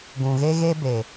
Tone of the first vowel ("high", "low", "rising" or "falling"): low